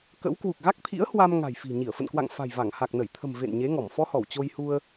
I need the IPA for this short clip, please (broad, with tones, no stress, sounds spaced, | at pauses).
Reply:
k ə̰˧˥ w k w u˨˩ k̚ ɣ a˦˥ k̚ t̪ʰ ḭ˧˥ ə̯ h w a˧ m ŋ a̤˨˩ j f i̤˨˩ ɲ i˧˩ ə̯ f ə̰˧˨ n k w a̰˧˨ ŋ f a̤˨˩ j v a˧˩ ŋ h a˨˩ k̚ n ə˧˩ j t̪ʰ ə̤˨˩ m v ḛ˧˨ n ɲ e˨˦ ŋ ɔ˧˩ m f ɔ˧ h ɔ˧˩ w t͡ɕ o˧ j h u˧ ə̯